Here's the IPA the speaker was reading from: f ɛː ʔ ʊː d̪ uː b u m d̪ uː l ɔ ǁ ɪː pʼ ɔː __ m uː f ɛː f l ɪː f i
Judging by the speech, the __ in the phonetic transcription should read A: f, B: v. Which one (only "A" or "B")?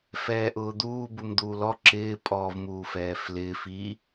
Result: B